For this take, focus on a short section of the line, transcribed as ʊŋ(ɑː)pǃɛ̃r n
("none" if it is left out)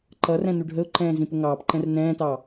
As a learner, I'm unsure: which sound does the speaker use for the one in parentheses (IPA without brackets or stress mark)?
ɑː